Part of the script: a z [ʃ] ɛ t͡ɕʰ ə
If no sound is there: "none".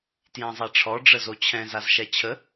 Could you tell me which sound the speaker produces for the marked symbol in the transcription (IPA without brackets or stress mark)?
ʃ